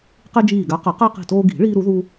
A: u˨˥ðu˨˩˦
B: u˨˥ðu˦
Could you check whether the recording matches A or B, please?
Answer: B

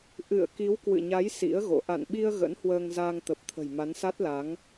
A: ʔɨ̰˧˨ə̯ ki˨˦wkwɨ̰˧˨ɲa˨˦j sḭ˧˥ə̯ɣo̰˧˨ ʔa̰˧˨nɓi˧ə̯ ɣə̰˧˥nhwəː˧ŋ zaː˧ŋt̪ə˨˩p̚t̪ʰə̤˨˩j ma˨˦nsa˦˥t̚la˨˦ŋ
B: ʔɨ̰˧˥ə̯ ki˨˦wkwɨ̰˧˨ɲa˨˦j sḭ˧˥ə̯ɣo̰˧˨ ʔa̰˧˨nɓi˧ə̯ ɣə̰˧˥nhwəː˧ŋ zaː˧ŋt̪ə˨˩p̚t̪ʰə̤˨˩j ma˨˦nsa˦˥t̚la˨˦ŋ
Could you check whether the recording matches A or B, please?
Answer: A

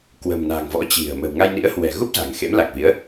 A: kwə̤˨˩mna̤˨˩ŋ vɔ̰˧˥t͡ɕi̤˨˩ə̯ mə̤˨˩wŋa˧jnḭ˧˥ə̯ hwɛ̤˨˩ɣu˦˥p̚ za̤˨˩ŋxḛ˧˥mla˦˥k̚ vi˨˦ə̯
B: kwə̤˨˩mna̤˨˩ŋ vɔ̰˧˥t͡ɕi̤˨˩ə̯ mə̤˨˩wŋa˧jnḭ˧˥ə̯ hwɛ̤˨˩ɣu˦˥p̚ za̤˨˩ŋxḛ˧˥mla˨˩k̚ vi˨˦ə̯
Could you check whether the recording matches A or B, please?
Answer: B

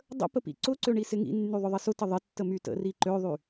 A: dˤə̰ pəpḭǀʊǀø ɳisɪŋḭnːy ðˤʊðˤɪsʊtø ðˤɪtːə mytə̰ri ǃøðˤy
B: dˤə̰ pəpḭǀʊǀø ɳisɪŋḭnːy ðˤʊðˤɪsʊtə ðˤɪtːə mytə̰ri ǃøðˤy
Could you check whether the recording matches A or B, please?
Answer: B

